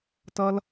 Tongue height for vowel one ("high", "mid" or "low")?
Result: mid